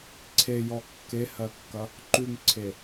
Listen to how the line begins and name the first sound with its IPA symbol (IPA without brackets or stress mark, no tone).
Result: ǀʰ